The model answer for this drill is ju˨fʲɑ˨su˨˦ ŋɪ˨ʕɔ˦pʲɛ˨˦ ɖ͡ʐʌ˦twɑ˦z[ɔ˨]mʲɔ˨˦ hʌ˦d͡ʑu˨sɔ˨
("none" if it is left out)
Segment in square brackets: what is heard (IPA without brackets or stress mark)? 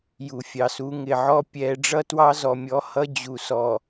ɔ˨